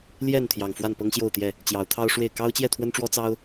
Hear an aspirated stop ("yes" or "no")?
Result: yes